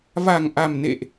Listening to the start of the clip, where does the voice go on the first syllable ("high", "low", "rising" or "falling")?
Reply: low